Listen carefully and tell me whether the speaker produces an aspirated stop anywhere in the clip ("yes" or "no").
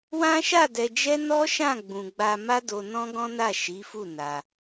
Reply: no